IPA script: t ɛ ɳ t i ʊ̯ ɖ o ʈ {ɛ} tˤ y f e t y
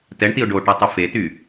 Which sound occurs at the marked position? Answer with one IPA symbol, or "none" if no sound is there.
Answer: ɛ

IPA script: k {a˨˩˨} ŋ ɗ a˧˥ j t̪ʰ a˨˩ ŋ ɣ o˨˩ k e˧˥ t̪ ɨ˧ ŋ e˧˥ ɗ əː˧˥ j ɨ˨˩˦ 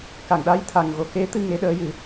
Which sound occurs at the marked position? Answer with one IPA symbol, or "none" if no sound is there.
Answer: a˨˩˨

